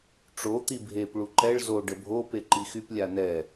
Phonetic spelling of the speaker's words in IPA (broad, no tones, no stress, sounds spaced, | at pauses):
ʈ͡ʂ o t̪ i bʱ e p ɭ u ǃ ɛ ɭ z o ɖ ə bʱ o p e ǃ i x y p lʲ a n ɛ